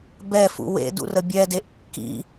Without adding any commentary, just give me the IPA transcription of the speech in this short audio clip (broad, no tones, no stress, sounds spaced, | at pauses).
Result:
b ɛ f ṵ w ḛ d ṵ r ə bʲ ɛ d e ʔ kː ḭ